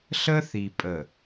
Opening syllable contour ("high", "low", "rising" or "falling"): high